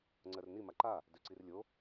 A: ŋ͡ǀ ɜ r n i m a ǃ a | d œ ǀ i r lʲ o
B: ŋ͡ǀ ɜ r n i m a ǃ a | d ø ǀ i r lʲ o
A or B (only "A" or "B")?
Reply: B